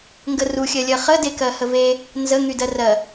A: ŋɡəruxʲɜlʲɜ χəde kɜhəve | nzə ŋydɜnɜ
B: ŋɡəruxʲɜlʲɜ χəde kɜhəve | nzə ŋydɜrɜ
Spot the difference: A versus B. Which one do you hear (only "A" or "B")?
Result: B